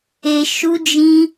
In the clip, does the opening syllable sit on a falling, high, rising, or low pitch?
high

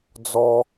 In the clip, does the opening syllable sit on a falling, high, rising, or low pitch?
high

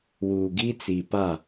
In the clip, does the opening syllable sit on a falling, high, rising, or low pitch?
low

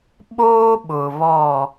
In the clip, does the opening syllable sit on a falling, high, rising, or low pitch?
high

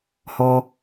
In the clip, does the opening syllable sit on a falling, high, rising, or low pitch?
low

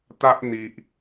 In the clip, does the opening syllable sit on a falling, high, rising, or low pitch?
high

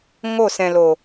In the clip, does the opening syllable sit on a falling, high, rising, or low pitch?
falling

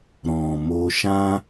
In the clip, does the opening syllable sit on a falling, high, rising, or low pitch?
low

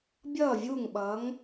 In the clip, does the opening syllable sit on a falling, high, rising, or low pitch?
falling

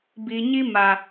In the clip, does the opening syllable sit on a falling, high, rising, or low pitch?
low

